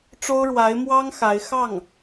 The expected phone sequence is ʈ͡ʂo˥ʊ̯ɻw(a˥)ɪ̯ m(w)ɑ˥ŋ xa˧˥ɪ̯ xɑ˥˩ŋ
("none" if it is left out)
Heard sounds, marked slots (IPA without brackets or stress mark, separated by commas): a˧˥, w